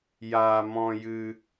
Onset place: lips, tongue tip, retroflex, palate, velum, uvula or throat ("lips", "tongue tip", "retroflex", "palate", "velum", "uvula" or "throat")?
palate